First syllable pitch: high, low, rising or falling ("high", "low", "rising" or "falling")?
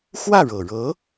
falling